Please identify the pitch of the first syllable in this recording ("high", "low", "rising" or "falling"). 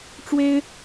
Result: high